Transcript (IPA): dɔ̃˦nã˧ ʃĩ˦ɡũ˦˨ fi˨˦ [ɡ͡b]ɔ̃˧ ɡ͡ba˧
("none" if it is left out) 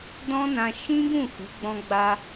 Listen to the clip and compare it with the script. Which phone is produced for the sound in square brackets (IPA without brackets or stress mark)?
ɡ͡b